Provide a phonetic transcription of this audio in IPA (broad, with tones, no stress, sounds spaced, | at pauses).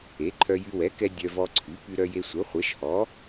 e˩˥ ǃʰ œ˧ j y˧ w ɛ˩˥ k ɛ˧ dʲ œ˧ v ɔ˧ ǀʰ y˩˥ p y˧ ɾ œ˧ j e˧ sʷ œ˩˥ χʷ ɛ˩˥ ʃ h ɔ˩˥